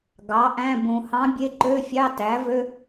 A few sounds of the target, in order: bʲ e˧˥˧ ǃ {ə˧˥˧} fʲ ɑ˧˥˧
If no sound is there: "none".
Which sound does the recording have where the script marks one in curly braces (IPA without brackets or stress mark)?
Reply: ø˧˥˧